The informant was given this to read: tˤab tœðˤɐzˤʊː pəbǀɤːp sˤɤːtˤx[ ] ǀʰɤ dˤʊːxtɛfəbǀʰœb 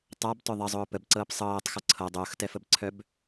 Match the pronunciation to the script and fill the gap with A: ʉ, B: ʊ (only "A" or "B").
B